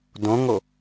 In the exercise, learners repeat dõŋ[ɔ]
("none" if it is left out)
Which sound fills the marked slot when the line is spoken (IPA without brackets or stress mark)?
o